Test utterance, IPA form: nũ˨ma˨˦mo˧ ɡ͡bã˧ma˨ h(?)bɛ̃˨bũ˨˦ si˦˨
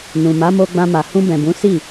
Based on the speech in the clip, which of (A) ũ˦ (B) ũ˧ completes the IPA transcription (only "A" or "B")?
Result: B